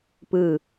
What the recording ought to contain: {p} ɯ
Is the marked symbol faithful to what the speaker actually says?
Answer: yes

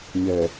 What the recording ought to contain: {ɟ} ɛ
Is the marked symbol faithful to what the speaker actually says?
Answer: no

